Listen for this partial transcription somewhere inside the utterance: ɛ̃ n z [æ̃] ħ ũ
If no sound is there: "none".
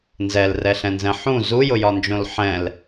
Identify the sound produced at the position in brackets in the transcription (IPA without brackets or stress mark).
ɛ̃